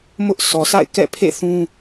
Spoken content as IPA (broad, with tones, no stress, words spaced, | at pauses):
mʊ˦ʔ sɔ˨sa̰˦˨ɪ̯kɛ̰˦˨pʰḛ˦˨ θũ˦